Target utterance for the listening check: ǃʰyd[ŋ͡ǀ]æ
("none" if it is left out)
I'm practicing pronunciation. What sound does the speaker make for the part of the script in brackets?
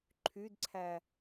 ǀʰ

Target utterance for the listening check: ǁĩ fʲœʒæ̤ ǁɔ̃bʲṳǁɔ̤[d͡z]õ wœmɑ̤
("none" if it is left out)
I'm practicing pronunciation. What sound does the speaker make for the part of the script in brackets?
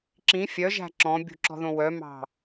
ð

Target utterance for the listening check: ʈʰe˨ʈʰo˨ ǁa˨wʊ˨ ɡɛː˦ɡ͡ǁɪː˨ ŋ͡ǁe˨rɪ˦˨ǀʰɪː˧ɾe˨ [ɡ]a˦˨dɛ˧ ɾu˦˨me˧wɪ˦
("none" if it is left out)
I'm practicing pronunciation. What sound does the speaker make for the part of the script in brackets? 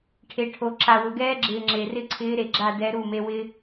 ɡ͡ǁ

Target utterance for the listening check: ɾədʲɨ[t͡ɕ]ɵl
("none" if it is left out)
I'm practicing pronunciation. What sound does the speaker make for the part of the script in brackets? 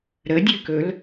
k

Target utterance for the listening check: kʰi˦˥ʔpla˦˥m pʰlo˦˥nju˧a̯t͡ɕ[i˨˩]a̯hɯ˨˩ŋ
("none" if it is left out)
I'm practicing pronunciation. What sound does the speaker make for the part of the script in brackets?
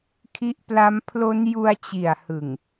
i˨˩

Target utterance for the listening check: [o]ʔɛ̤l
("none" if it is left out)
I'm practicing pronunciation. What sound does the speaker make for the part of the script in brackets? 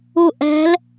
u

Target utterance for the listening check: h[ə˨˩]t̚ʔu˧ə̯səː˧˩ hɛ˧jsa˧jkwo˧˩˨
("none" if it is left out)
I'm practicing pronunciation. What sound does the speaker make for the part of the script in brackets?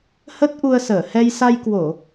ə˦˥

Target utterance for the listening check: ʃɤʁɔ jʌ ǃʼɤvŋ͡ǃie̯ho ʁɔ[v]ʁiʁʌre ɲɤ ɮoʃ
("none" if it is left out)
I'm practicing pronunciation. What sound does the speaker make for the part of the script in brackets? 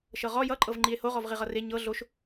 v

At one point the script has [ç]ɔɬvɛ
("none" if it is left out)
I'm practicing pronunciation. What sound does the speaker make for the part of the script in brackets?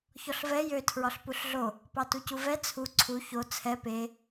ç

